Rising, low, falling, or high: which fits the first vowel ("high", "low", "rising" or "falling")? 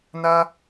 high